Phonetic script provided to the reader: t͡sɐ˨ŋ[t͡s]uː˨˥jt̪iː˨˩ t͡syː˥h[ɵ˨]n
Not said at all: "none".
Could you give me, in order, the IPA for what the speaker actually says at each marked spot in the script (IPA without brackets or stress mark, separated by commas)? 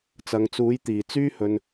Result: t͡s, ɵ˨